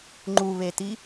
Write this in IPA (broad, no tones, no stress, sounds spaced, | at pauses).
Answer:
ŋ͡ǃ u β e t i